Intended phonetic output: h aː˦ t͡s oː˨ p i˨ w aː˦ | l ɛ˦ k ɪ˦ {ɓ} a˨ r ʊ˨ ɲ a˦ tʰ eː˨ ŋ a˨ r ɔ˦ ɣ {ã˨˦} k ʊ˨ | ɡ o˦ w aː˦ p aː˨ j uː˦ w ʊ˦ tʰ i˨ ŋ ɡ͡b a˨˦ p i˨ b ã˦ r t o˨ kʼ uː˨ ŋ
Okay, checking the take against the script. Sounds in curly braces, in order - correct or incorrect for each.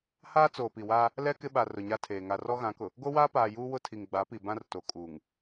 correct, correct

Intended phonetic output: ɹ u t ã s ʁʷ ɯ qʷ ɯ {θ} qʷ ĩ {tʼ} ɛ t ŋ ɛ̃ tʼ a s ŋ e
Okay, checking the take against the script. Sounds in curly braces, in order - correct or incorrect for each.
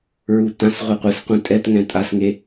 incorrect, correct

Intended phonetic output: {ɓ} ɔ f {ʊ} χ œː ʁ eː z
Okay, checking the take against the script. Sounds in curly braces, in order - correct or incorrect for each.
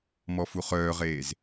incorrect, incorrect

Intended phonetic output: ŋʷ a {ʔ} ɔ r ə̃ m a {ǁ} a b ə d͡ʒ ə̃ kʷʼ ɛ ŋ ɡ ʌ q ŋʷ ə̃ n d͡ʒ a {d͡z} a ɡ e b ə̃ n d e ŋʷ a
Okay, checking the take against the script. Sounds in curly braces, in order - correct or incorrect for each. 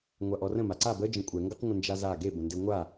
correct, incorrect, incorrect

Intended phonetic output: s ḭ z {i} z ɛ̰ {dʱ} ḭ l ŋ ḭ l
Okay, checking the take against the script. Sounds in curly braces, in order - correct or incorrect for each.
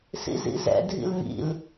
incorrect, correct

